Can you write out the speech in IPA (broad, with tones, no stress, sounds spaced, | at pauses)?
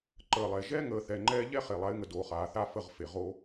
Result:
ǃ əː˨ lˠ ɛ˨ ʒ ɛ˦ ŋ əː˨ θ ɛ˨ ŋ͡ǃ ɛː˦ ʎ ɛ˦ χ e˨ lˠ a˨˦ ɪ̯ ŋ ə˨ d oː˨ χ aː˨ θ a˦ f ə˦˨ ʁ f e˨ ʁ o˦